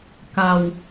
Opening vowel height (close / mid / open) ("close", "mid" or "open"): open